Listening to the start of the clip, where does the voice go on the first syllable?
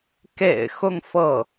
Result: low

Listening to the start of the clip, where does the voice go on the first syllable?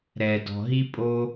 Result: low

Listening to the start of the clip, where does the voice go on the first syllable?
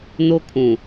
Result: high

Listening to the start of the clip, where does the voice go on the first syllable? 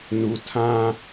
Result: low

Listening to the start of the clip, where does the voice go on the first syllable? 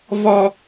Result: high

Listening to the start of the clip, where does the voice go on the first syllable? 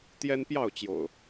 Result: high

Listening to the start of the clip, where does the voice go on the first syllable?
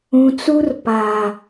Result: low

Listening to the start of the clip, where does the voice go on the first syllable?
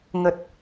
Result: low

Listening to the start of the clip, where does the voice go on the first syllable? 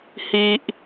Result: high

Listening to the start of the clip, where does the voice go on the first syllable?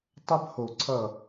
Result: high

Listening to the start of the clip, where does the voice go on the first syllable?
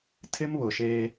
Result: high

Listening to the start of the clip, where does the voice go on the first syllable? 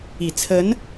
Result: low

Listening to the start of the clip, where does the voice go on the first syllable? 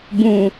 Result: low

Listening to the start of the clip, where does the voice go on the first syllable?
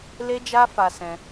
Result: high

